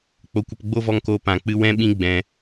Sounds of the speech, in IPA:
k͡p o˧ kʷ ə˧ p ɡ͡b o˦ v ɔ˧ ŋ k oː˧ p ã˨ k͡p ɨ˧ w ɛ̃˧ ɓ ĩ˧ ɡ͡b ɛ̃˧

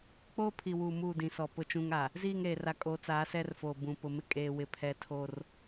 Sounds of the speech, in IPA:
k͡p oː˦ pʰ i˨ w uː˨ m uː˦˨ d ĩ˨ s ɔ˨ p ʊ˦ t͡ʃ ũ˦ ŋ a˨ | z iː˦˨ ŋ ɾ eː˨ r a˨ kʼ o˨˦ t͡s aː˨˦ s ɛ˦ r f oː˨ b ũ˨ p ʊ˨ m ɪ˦ kʼ eː˦ w ɪ˦ pʰ ɛ˦ tʰ o˦ r

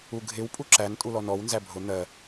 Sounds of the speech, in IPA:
u ɡʱ ɪ w pʼ u ǁ æ n tʼ u l ɔ n ɔ w n z æ bʱ ʊ n̪ ɜ

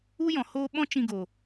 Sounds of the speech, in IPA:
u˦ j ɔ̃˨ h oː˦ ɓ ɔ̃˦ t͡ʃ ĩ˧ ɡ oː˨

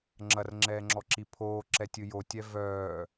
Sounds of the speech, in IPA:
ŋ͡ǁ ɐ r ŋ͡ǁ ɛː ŋ͡ǁ ɔ ǁ i pʰ oː ǁ ɛ tʲ ɨ j o tʲ ɛ v œː

